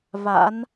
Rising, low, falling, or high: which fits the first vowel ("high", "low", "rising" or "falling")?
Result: rising